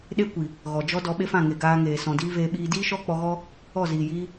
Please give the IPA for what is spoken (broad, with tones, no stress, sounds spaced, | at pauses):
ɗ e˦ kʷ i˨ | ɣ ɔ˨ d͡ʒ ɔ˦ d ɔ˧ ɓ e˦ f ã˦˨ ŋ e˨ ɡ aː˧ ŋ eː˨ s ɔ̃˨ d iː˦ v eː˧ ɓ iː˧ d iː˦ ʃ ɔ˦ k͡p ɔ˧ ɣ ɔ˦ | ɔ˦˨ z iː˨ j iː˦